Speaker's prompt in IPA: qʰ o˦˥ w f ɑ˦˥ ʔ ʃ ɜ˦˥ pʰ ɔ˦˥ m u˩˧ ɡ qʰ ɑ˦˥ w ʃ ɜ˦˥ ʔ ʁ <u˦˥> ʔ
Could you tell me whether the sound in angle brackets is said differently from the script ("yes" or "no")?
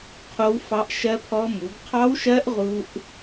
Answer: no